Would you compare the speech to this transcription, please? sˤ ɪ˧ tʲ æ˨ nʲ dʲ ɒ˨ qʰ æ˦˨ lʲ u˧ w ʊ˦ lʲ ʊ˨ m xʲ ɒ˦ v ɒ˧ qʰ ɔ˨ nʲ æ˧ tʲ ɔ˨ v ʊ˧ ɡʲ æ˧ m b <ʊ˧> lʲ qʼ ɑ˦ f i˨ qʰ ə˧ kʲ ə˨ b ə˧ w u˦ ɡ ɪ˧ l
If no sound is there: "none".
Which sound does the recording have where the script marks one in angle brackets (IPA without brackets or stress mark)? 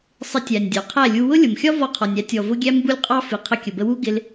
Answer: u˧